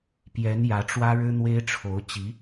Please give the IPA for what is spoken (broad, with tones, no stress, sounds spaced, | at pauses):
p j ɛ˧˥ n j ä˧˥ ʈ͡ʂ w ä˥ ɻ ɻ̩˥ n̪ w e˥ ɪ̯ ʈ͡ʂʰ o˧˥ ʊ̯ t͡ɕ i˧˥